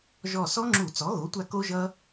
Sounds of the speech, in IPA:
ʒɔ˧˩ sɔ˦˥ŋ͡ǁu˧˩˧ t͡sɔ˩˥ɣo˩˥tʷa˧ ko˦˥ʒʌ˦˥

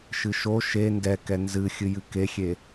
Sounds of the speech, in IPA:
ʃɨʃo ʃe ndɛkɛ nzɨ xʲɨjɨkexʲe

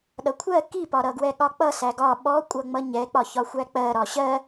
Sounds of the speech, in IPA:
ɗʌkʷʰɜ kipɒɾʌɡwɛ ɠɒk͡pʌsæ ɡɒ ɓɔkʷʼʌŋ͡mʌ ɲɛk͡pɒçɒ xʷæk͡pɜɾɒ ɕɜ

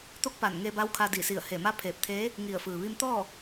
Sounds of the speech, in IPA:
t̪o˧˥k̚pa˧˩n ŋeː˧ba˧˥wkʰa˧ di˧˩si˧˩ə̯ heː˧˩ma˧˥pʰeː˧˩p̚t̪ʰeː˧˥ | ŋi˧˩ə̯ fɯː˩ʋi˧mt̪ɔː˥˨

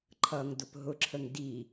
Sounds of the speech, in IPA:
ǃʰʌŋdʊp ɦʊǁʰəŋ di

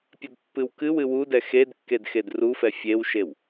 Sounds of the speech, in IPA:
pʲɐdpːɨwkɨwɨ wudɛ xedkːed xedrufɛ fʲewʃew

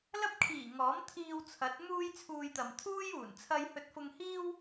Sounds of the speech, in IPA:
lɐ˥p̚kʰiː˨˩ ŋɔː˨˥mt̪ʰiː˧wt͡sʰɐ˨˥t̚ muː˥jt͡sʰuː˧jt̪ɐ˨m t̪ʰuː˥juː˨˩n t͡sʰɐ˧jhɵ˧t̚fʊ˧ŋhiː˥w

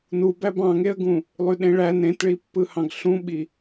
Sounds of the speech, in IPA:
nu bæbɑ̃ŋeə̯ɡũ | lˠyɗẽɭæn ɾẽtɭipːɯhɑ̃ɡ ɬũɓi

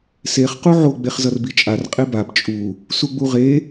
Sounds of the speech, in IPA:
seχ quʕo ɡ͡beχzʌrbit͡ʃʼar qʼebab t͡ʃʼu | suɡ͡buʁe

